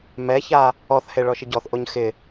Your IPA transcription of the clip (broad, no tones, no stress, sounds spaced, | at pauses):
m ɛ ç a | ɔ θ h e ɭ ɔ ʃ ɪ ɟ ɔ θ ʔ o ɲ x ɪ